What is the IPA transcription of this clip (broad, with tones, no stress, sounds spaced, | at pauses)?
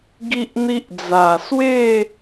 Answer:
ɡ i˦ ʔ n̪ i˦ ʔ d͡z a˨˩ s w e˥˧